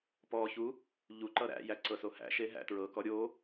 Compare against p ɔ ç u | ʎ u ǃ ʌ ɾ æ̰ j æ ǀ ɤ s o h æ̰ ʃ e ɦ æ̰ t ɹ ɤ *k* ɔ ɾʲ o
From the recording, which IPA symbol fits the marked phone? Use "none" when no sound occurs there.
k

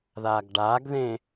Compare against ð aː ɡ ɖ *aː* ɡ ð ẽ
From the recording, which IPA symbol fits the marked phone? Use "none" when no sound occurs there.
aː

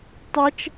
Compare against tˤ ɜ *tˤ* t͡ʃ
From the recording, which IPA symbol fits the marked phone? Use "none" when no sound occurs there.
none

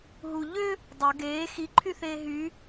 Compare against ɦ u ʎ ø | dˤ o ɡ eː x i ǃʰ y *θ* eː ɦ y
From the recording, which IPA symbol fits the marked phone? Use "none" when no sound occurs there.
θ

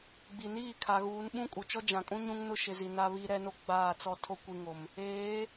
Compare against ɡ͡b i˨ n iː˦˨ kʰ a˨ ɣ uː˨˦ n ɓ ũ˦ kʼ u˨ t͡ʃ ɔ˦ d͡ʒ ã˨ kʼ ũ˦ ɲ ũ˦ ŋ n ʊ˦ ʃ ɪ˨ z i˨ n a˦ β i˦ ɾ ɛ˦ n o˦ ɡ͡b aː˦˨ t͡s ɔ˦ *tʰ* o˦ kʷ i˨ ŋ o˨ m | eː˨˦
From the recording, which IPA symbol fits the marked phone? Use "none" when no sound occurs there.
tʰ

